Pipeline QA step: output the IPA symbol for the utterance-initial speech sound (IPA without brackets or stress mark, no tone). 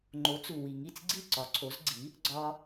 ŋ͡ǃ